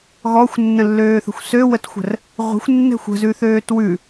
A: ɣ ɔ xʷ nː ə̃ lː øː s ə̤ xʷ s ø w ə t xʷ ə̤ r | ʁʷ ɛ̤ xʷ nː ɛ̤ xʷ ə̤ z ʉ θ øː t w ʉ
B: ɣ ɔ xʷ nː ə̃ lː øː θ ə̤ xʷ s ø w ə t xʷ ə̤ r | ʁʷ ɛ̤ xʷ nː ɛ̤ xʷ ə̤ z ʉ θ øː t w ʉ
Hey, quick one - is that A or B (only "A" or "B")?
B